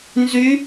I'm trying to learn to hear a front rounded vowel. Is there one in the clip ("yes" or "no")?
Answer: yes